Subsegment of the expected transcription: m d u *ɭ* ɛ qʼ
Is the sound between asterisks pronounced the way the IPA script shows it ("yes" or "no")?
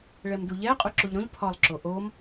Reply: no